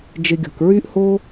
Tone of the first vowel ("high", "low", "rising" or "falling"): low